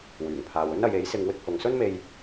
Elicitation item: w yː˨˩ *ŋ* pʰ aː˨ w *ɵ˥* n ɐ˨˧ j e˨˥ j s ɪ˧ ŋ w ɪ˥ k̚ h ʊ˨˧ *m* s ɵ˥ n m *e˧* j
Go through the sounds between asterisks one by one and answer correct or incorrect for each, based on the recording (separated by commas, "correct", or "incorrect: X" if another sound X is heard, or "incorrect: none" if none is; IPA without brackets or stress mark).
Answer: correct, correct, incorrect: ŋ, correct